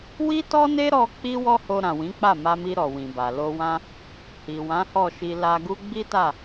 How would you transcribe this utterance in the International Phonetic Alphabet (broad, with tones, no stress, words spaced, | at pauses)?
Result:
wi˦tɔ˦ne˦ɾɔ˧ k͡pi˦wɔ˦ho˧ ɾã˨wĩ˨˦k͡pa˦˨ ma˧mi˧ ɾɔ˨wĩ˨ba˨ lo˧wã˦ | hi˨wã˨˦hɔ˦˨ʃi˧ la˧ɡu˦ ɡ͡bi˦ta˦˨